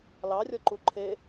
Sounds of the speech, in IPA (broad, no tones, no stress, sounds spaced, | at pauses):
l ɑ rʲ ɔ ǃ u ǃʰ e